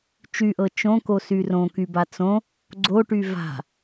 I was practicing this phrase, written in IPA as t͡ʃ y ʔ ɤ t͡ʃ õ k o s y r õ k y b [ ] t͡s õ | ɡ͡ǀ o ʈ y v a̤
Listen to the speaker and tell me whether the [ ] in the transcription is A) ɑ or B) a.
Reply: B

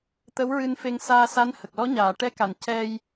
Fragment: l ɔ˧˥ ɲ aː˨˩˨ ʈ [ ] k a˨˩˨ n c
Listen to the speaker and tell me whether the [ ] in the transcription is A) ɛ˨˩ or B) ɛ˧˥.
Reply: B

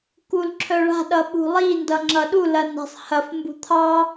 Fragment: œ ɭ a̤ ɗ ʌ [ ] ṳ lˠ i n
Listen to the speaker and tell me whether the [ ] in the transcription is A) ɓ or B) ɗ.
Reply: A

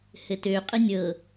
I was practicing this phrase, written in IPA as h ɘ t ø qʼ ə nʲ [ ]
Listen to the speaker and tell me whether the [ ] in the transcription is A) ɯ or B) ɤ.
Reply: B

